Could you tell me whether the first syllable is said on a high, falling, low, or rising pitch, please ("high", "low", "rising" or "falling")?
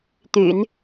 low